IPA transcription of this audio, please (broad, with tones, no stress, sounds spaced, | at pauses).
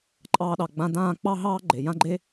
ǃʼ ɑː˧ ɗ ɑ˨ ɡ͡b ã˧ d ãː˦˨ k͡p ɑ˦ ɦ ɑː˦ ɡ͡ǃ e˨ j ã˦ ɡ͡ǃ e˦